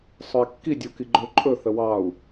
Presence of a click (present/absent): present